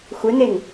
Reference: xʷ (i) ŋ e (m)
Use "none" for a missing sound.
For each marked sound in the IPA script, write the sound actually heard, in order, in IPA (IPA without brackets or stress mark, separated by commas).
e, ŋ